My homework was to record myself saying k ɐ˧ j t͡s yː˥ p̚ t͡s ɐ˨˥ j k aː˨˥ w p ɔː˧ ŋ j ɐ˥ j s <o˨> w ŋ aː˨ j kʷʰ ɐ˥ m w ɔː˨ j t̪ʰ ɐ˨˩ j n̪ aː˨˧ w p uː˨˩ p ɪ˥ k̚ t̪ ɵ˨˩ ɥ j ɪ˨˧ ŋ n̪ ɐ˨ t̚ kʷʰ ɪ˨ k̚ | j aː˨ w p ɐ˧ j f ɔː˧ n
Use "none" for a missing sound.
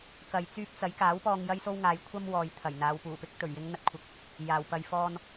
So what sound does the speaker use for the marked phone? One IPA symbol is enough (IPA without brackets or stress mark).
o˥